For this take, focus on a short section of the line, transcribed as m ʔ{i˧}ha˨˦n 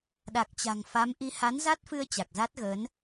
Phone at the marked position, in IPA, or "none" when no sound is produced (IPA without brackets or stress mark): i˨˦